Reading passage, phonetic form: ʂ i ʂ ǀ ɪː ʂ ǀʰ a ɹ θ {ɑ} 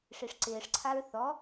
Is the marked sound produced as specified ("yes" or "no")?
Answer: no